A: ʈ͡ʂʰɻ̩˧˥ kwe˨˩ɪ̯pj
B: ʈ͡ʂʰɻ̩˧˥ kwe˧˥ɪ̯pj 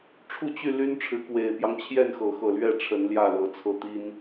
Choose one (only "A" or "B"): A